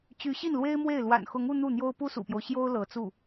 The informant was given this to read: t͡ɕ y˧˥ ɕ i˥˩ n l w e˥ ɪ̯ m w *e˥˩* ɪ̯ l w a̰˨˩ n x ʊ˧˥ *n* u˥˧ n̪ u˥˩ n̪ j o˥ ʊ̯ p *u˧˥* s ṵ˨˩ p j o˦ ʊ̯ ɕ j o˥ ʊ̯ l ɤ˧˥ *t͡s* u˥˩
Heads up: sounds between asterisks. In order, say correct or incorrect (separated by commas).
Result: correct, incorrect, incorrect, correct